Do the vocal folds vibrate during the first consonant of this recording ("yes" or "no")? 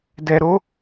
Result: yes